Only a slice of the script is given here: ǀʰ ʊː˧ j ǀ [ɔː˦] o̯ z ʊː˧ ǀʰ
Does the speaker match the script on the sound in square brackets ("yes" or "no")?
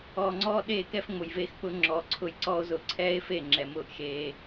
yes